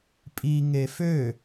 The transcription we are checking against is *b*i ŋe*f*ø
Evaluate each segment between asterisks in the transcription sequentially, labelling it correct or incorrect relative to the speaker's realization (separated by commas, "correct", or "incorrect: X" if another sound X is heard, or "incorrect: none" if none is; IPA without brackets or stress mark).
incorrect: pʼ, correct